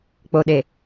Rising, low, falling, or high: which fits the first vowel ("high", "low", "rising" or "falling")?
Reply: low